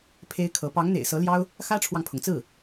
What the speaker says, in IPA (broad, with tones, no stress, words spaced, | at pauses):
pʰe˥ɪ̯kʰɤ˧˥ pɑ˧˥ŋn̪ḛ˨˩ɪ̯sɤ˧˥ljɑ˥ʊ̯ | xä˥ʈ͡ʂʰwɑ˨ŋpʰʊ˩ŋt͡sɹ̩˥˩